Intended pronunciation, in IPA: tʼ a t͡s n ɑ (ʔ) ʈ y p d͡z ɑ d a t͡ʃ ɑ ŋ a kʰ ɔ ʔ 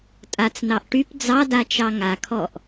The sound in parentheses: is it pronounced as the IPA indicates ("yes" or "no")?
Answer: yes